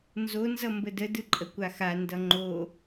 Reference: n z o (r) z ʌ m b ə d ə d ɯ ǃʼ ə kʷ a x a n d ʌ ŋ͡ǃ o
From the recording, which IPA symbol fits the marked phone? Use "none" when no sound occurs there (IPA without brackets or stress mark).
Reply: n